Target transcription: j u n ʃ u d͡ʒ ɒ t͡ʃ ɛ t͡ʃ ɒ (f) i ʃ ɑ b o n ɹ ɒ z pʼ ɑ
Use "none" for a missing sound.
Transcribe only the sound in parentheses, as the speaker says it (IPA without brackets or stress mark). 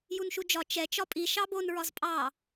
pʼ